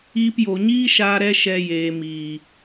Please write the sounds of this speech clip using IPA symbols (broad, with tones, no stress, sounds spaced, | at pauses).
iː˧ p j o˨ ɲ iː˦ ʃ aː˧ ɾ ɛ˦ ʃ ɛ˧ j eː˨ m iː˨